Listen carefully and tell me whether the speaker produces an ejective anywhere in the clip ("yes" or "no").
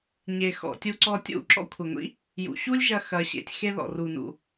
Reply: no